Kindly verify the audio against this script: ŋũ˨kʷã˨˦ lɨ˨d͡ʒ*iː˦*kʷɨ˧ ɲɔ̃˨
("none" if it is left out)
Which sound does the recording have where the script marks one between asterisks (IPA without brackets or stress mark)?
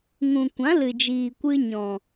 iː˨